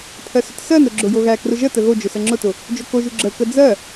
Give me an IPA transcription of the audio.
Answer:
pʰ ɜ s ʊ t s ɜ n ɾ ʊ ɡ͡ǁ ʊ j o ɣ æ k r ʊ ʒ ə t ə ɣ o d͡ʒ ʊ s ə ŋ͡ǁ ʊ t ʊ | d͡ʒ o k o ʒ u ɡ͡ǁ ə k ə d͡z ɜ

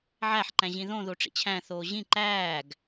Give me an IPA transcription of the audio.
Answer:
ʕ æ ħ ǃ æ̃ ʑ ĩ ð õ ð o ʈ͡ʂ ḭ t͡ɕʰ æ̃ θ oː ʑ ĩ ǃ æː ɡ

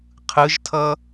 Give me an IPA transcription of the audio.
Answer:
qʰ ɯ ʒ tʰ ʌ

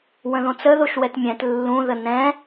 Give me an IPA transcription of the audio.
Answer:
w ə̃ ð õ t͡s ə ð o ʃ w ɛ t mʲ ɛ̃ t lː ũ ð ə n ɛ̃

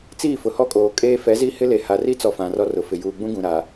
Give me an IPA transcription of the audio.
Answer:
t͡s iː˦˨ f ʊ˨ h ɔ˦ kʼ oː˨ kʼ eː˦ f ɛ˨˦ z i˦ h ɪ˦ l e˨ h a˨ r i˦ t͡s ɔ˨ f ã˨ r ɔ˦ r ʊ˨ f ɪ˨ j uː˨ ɡ͡b ũ˦ ɡ ũ˨ ɾ aː˨

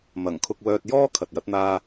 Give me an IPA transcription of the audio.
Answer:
m ɐ˨˩ ŋ kʰ ʊ˧ k̚ w œː˧ t̚ j ɔː˥ kʰ ɐ˨ t̚ j ɐ˨˥ t̚ n̪ aː˧

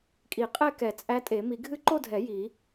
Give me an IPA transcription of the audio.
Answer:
kʼ i˨˩˦ qʼ ɛ˥˧ k ɛ˨˩˦ t͡sʼ æ˦˥ tʼ e˨˩˦ m i˨˩˦ ɡʱ ɨ˦˥ ǃ o˥˧ dʱ ɛ˨˩˦ j i˨˩˦

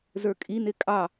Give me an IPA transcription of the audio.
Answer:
z ə˞ kʼ i n ɪ kʼ ɑ

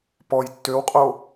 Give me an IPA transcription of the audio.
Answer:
p ɔ j tː ø w qʼ o

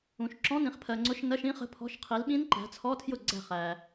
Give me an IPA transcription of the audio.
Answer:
ũ˨ ʃ ǁ ɔ̃˧˥˧ n ĩ˨ χ pʰ ɜ˨ ŋ͡ǀ ʊ˧˥˧ ʃ n ɜ˧˥˧ ʃ ĩ˦˥ χ ə̤˧˥˧ pʰ ɔ̤˧˥˧ ʃ qʰ i˨˥ l ɓ ĩ˦˥ n ǃ æ̤˨˥ t͡sʰ ɔ˧˥˧ tʰ j ʊ˥˩ ɡ͡ǀ æ̤˥˩ χ æ˨

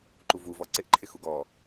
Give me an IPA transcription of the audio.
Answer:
ǃ u v u v ɔ ǀ ɪ ʔ ǃʰ ɪ x u ɡ ɔ

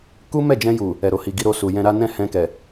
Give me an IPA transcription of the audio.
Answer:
k u˦ m ɛ˦˨ d͡ʒ ɛ̃˧ j u˨ | ɛ˨ ɾ o˨ h i˨ ɡ i˧ ɾ o˧ s u˨ j ɛ̃˧ ɾ a˦ n ɛ̃˦˨ h ɛ̃˧ k ɛ˨

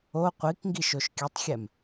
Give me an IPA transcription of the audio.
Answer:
o qʷ i k ŋ ɡ i ʃ o ʃ kʲ ɨ tˤ xʲ ɛ m

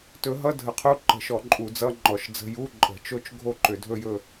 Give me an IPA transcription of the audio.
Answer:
t ɵ˨˦ ɦ ʌ˧˥˧ dʱ ə˨˦ qʰ u˧˥˧ ǃ ə̤˧˩˧ ʃ ɔ˧˩˧ ǃʼ u˧˩˧ d͡z ʌ˧˥˧ ŋ͡ǃ ɔ˧˩˧ ʃ d͡z ə̤˧˥˧ j u˧˥˧ ǃʼ ə̤˧˩˧ t͡ʃ o˥˧ t͡ʃ ɡʱ o˥˧ ǃ ʏ˧˩˧ dʱ ɵ˥˧ j ɵ˥˧

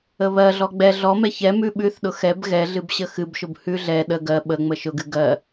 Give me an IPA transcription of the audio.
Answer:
ə β ɜ ɮ ɔ ɡ͡b ɛ ɮ ɔ m ɛ ç ɛ m ʉ ɓ ʉ θ ɗ ʊ x ɛ b ɣ ɛ ɮ ɨ b ɕ ə x ɨ b ʃ ʊ b h ʉ ɮ ɛ ɗ ə ɡ ɜ ɓ ə ŋ͡m ə ʃ ʊ ɡ ɨ ɡ ɜ

